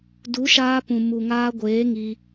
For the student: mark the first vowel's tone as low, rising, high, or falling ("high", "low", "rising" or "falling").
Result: rising